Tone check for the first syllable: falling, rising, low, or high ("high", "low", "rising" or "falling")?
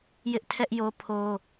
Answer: high